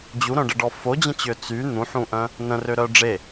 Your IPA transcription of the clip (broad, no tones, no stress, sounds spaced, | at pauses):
d͡ʑ u ɾ œ̃ ɖ ə ɖ ɔ f o d͡ʑ ə̃ t͡ɕ ø t͡s y n̪ ũ ħ ũ ʔ œ̃ | n ə̃ r ø ɾ œ ɖ͡ʐ e